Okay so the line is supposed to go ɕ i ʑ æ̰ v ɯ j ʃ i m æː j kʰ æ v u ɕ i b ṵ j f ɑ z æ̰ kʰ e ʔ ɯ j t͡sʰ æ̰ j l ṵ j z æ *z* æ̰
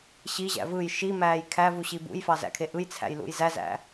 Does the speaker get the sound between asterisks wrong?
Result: no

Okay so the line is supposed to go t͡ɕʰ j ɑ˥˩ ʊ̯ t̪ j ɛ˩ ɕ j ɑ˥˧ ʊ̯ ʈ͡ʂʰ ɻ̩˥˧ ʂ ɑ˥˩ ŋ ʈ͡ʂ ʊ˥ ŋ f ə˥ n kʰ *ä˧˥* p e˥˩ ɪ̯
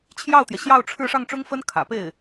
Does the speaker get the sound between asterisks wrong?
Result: yes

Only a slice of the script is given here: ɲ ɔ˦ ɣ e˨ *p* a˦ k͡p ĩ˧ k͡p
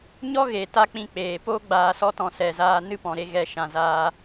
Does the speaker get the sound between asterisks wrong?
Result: yes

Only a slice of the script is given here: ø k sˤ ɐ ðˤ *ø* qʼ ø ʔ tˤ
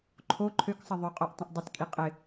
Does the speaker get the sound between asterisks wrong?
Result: no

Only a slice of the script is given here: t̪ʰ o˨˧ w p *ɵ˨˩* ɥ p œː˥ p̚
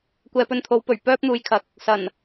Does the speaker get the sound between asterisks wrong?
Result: no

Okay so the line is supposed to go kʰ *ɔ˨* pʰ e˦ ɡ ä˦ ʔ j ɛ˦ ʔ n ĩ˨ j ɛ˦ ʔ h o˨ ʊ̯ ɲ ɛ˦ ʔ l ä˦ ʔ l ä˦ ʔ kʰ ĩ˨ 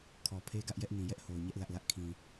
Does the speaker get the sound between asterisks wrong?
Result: no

